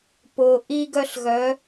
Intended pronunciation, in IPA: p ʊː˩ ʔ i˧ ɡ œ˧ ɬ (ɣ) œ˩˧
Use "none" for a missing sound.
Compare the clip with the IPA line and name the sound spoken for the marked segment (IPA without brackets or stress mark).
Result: ɣ